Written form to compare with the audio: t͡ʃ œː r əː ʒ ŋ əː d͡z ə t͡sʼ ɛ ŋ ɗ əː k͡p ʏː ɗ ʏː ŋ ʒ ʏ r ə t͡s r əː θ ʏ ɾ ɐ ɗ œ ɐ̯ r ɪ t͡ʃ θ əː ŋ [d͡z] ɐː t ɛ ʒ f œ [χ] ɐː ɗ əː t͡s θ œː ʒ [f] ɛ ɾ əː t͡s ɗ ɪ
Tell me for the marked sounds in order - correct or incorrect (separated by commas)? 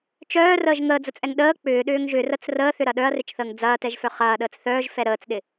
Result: correct, correct, correct